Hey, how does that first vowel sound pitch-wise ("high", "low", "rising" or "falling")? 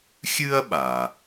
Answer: high